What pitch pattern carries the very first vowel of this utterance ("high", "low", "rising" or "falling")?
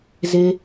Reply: high